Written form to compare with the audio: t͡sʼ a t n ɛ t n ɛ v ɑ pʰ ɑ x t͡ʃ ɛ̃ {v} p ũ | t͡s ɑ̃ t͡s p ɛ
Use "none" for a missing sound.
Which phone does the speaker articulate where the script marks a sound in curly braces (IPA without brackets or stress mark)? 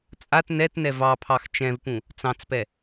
v